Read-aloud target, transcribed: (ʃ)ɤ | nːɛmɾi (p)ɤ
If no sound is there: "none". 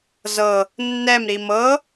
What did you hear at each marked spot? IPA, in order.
z, m

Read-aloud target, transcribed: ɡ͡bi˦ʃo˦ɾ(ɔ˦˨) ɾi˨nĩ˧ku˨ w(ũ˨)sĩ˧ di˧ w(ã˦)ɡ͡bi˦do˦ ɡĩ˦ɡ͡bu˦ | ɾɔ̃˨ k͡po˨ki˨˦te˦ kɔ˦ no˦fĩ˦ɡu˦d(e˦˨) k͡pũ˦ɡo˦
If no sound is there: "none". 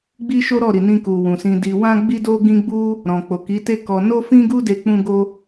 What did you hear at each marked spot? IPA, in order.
ɔ˦˨, ũ˨, ã˦, e˧

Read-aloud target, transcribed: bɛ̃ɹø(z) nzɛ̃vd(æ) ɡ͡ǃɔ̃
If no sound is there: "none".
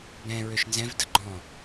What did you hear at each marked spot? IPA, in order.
ʃ, ə

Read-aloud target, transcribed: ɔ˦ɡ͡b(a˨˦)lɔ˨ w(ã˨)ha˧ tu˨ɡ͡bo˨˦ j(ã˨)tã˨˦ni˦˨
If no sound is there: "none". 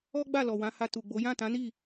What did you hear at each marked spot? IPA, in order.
a˦˨, ã˨˦, ã˦˨

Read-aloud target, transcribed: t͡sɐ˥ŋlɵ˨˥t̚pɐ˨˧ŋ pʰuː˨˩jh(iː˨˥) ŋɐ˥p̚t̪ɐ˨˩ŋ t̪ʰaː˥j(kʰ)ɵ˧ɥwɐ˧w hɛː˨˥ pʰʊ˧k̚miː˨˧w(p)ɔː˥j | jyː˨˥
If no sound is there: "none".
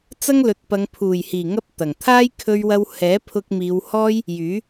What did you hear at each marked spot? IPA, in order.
iː˨˩, kʰ, h

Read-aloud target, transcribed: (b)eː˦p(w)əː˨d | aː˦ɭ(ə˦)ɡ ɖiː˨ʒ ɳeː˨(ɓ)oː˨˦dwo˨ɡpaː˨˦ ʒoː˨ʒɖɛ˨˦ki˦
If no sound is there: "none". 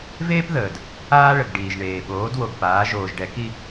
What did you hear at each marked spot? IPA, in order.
v, ð, ə˨, ɓ

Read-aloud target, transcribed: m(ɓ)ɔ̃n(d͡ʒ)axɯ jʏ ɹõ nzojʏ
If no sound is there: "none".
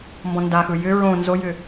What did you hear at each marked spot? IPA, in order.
b, d

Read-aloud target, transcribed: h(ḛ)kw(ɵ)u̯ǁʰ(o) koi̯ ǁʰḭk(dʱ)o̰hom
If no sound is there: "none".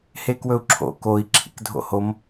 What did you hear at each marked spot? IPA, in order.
e, ɵ, o̰, dʱ

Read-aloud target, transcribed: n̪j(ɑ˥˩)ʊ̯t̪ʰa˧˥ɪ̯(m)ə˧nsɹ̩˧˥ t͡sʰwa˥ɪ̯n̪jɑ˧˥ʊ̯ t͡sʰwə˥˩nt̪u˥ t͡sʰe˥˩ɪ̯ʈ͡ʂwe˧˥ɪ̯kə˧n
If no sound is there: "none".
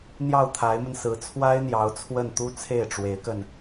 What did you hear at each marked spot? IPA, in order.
ɑ˥˩, m

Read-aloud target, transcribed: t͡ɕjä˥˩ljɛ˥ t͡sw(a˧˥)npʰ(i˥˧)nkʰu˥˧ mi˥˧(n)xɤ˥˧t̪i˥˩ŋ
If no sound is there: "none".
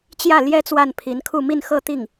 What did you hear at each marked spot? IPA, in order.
a˥˩, i˧˥, n

